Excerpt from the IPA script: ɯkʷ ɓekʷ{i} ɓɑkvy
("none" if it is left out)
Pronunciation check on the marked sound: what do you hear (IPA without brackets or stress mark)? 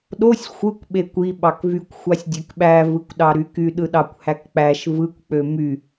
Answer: i